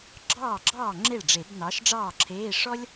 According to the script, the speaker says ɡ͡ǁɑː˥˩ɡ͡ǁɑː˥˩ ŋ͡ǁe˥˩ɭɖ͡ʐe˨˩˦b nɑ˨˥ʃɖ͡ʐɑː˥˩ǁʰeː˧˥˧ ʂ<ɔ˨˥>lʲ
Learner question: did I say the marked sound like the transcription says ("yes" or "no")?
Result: no